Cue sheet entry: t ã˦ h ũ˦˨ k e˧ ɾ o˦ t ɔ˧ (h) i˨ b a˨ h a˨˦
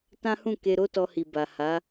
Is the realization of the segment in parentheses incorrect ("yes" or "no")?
no